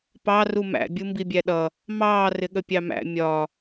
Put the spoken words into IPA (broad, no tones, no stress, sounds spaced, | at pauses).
p ɑ r u m æ̰ bʲ u m b i bʲ æ ɗ ʌ | m ɑː r ɪ ɠ ə pʲ ɑ m æ̰ mʲ ɒ